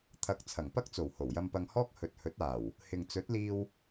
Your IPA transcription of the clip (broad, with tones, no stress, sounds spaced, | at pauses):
t̪ʰ ɐ˨˥ k̚ t͡sʰ ɐ˨˩ ŋ p ɐ˥ k̚ t͡s o˨˩ w h o˨˩ w j ɐ˧ m p ɐ˧ ŋ h ɔː˥ k̚ h ɵ˨ t̚ h ɵ˨˥ t̚ aː˨˩ w | h ɪ˨ ŋ t͡s ɵ˨˥ t̚ l iː˧ w